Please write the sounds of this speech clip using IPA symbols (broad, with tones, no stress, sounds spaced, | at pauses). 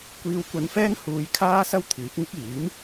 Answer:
kʷ iː˧ w kʷ ɐ˧ n f ɛː˥ ŋ h uː˧ j kʰ aː˥ s ɐ˥ w t̪ʰ iː˨˥ p̚ ŋ ɪ˥ k̚ iː˨˥ m